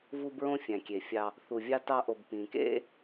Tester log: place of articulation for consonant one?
labial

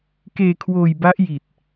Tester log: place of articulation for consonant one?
velar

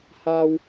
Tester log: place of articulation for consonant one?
glottal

